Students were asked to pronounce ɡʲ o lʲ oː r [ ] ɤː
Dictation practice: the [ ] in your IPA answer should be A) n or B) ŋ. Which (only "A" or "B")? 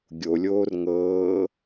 B